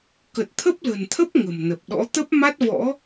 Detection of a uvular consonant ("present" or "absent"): absent